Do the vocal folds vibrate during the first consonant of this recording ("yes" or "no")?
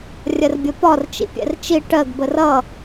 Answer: yes